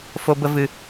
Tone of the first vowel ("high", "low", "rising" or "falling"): high